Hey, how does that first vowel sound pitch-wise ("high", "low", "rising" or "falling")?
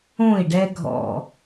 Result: falling